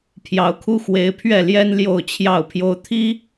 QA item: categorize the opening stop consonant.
aspirated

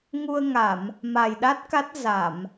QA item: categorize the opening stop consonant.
implosive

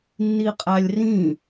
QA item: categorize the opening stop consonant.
ejective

